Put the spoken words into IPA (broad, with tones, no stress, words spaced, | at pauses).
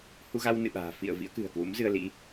hu˧ɣa˧w nɨ̰˧˨ɓa̤ː˨˩ fḭ˧˨ə̯ vḭ˧˥ə̯kɨ̤˨˩ə̯kwṵ˧˥mzɨ˧ə̯ lḭ˧˥